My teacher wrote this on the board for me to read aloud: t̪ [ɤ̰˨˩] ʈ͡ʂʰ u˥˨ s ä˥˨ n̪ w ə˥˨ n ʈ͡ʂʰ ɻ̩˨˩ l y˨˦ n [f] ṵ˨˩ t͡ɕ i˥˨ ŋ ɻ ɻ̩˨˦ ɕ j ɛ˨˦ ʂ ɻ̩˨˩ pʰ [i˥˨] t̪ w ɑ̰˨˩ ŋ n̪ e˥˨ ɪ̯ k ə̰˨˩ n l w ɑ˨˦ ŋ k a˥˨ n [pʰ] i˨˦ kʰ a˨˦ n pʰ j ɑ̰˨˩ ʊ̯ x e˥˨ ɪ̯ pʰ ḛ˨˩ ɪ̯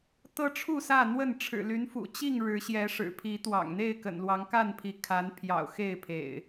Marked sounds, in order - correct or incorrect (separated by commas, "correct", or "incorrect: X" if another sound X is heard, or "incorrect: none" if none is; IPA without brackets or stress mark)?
incorrect: ɤ˦, correct, incorrect: i˨˦, correct